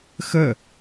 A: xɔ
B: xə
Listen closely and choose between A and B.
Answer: B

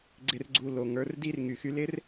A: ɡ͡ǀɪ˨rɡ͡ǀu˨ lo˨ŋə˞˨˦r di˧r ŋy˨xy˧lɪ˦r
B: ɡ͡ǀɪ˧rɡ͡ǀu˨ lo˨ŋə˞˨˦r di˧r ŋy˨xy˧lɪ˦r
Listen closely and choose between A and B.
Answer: A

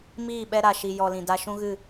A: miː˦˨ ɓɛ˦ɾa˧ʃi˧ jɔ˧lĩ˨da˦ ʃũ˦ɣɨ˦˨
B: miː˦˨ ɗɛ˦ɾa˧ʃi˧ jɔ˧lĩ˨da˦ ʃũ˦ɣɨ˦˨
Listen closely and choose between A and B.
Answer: A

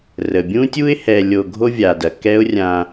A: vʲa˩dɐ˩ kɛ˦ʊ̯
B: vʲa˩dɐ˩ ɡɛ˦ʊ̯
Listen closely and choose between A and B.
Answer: A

